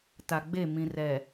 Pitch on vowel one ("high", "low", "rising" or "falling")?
low